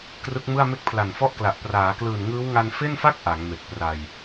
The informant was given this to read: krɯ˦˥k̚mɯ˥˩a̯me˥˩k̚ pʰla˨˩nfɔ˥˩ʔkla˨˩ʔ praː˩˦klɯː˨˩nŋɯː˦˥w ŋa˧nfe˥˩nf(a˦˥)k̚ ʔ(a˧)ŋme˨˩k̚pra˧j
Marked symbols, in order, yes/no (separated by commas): no, no